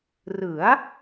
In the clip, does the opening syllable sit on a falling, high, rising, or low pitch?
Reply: rising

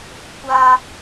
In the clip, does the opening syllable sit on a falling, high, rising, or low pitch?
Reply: high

